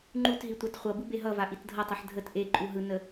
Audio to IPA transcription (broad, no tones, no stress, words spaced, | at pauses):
ŋ͡ǃutɦi tʷɑtχʷʌbɯ beɦʌva ʔitdʱʌtˤʌħ dʱət ʔeǃʼu ɦɯnə